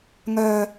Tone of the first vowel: low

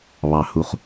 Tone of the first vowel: low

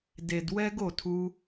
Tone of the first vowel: low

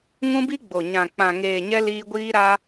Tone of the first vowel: high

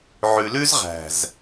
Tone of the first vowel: low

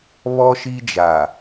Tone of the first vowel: high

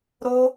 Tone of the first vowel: high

